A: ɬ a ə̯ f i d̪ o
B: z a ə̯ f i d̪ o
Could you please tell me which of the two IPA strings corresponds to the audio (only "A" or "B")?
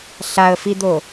A